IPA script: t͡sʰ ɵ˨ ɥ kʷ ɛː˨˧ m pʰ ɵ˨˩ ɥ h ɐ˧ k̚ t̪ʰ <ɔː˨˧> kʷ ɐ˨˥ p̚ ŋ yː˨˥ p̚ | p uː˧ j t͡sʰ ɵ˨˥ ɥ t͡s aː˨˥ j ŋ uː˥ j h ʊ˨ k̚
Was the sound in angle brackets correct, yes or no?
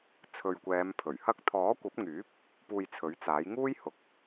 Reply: no